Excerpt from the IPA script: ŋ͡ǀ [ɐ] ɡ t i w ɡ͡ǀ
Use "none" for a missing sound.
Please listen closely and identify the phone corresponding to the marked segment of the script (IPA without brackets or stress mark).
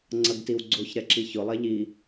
ɐ